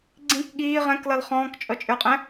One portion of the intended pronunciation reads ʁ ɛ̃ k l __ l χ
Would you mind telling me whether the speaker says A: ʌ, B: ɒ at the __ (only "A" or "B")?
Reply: A